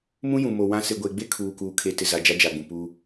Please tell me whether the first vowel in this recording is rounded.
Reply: yes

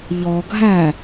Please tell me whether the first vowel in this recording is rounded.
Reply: yes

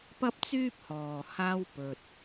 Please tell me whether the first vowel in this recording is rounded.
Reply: no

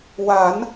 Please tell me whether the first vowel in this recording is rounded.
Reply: no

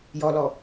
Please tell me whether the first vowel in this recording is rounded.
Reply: yes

